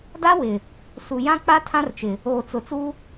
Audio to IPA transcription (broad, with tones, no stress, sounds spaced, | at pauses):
d a˦ w ɪ˨ | s u˨ j ã˦ k͡p a˦ tʰ ã˦ r t͡ʃ ɪ˨ | oː˨ t͡s ʊ˨ t͡s u˦